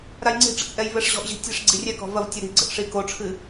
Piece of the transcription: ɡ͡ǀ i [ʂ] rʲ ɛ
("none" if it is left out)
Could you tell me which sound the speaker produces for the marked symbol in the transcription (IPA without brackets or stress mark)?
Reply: none